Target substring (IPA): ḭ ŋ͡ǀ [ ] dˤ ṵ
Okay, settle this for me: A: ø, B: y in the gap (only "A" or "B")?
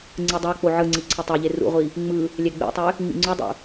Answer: B